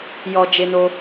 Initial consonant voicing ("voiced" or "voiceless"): voiced